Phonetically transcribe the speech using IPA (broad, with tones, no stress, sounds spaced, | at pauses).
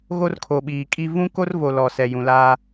ɣ o˦ r kʰ o˨ ɓ iː˨ kʼ i˦ v ũ˦ k o˦ r v o˨ l ɔ˨ s ɛ˨ j ũ˨ l aː˦